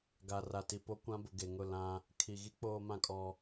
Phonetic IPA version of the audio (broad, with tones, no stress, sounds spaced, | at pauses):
ɡ a˨ r a˨ t i˨ p o˦ kʷ ã˦ b ʊ˨ ɡ e˨ ŋ ʊ˦˨ l ã˦ | kʰ i˨ ɣ i˦ k͡p oː˦ m ã˦ kʼ ɔ˦